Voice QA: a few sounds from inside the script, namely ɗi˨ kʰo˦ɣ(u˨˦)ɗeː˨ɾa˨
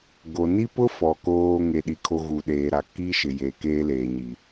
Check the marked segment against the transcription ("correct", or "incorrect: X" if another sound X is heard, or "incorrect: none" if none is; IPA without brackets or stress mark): incorrect: u˨